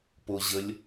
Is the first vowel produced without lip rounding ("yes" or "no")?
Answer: no